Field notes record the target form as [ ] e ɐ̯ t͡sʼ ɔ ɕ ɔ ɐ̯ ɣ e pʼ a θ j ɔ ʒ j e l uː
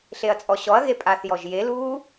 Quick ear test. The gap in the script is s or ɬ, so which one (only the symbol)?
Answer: ɬ